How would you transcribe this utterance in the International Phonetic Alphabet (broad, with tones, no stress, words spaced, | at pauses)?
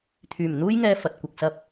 t̪ʰyː˨˩mn̪uː˥jŋɛː˧ fɐ˨t̚kʷɐ˨k̚sɐ˧p̚